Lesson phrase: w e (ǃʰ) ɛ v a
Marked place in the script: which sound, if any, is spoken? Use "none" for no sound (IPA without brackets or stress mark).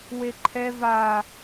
ǃʰ